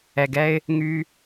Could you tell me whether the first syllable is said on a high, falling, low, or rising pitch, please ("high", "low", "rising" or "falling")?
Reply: low